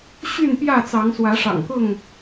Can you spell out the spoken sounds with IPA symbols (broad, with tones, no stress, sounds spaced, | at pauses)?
ɕ y˥˨ n p j ä˥˨ t͡s ɑ˨˦ ŋ s w ä˨˦ ʂ ɑ̰˨˩ ŋ k ʊ˥˨ ŋ